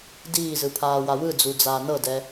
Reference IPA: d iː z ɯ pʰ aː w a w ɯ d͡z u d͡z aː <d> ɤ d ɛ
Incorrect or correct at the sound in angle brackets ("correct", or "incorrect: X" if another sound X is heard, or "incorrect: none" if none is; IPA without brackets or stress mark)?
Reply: incorrect: n